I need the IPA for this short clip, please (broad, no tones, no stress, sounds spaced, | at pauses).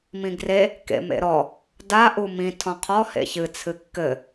m ĩ ɡ r e | k ḛ m ḛ ɾ ɔ | d a ʔ u m ĩ tʰ ɔ̃ qʰ ɔ h ḛ ç ɨ t͡sʰ ɨ kː ɘ